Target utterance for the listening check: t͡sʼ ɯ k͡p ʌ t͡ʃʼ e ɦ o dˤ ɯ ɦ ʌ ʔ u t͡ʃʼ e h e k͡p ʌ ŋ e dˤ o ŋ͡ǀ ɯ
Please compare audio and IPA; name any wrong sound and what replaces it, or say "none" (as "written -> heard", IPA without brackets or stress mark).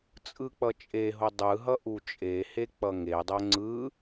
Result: none